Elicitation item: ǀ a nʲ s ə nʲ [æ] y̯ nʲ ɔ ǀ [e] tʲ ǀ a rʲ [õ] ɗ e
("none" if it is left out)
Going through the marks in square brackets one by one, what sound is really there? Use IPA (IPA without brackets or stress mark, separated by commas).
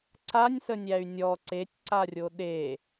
æ, e, o